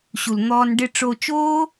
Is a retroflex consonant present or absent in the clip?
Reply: present